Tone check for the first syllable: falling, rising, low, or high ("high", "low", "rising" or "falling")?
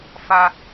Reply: high